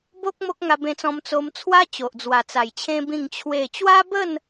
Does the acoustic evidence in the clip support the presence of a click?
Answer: no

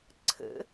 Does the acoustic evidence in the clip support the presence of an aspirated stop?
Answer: yes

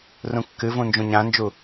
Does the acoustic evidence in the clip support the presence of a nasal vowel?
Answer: yes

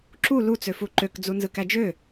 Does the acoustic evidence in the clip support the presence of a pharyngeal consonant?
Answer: no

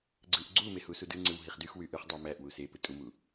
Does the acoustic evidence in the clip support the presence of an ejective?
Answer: yes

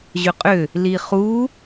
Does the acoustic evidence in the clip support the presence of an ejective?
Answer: yes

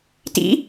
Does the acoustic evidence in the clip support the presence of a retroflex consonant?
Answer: no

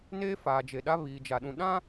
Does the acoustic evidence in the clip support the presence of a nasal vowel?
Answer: yes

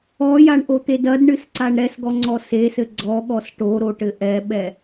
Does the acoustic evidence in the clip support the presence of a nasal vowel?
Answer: no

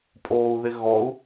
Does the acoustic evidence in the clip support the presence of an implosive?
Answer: no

